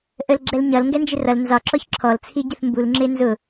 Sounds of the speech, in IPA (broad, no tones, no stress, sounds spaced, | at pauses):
ʔ ə l ɡ͡ǁ ɛ l ɲ ʌ l ŋ ɡ ɛ n d͡ʒ ɪ r ʌ l n z ɒ ǁ ɔ ç ǁʰ ɔ l t͡sʰ i ɟ ə θ m b u l ŋ͡ǁ ɪ n z ʊ